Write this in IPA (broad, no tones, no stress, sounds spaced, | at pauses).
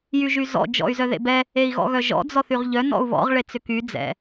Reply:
j y ʒ y z ɔ̰ d͡ʒ ɔ̰ y̯ z œ ð ḛ b ɛ | e i̯ ɣ ɔ̰ ɣ œ ʒ ɔ̰ d͡z ɔ θ y ʁ ʎ œ n ɔ̰ u̯ β ɔ̰ ʁ ɭ e t͡s ʏ k y d͡z ɛ̰